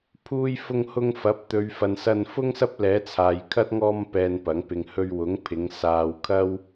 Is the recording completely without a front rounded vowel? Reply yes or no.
yes